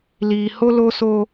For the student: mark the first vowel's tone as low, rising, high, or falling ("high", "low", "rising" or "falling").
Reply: low